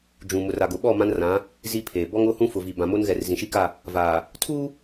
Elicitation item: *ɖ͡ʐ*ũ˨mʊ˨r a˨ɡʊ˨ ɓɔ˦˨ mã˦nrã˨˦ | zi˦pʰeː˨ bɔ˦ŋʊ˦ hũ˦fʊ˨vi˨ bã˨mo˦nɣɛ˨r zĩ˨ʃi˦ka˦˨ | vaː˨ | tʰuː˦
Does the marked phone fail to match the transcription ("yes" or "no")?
yes